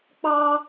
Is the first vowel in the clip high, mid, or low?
low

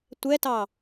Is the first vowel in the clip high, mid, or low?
mid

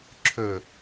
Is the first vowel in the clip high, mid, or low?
mid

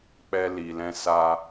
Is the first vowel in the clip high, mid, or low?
mid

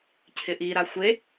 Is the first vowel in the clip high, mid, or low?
high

